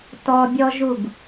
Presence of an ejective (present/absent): absent